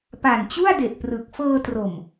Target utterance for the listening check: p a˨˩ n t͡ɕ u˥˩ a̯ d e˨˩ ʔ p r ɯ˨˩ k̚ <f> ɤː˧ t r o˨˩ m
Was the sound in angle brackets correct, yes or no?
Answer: yes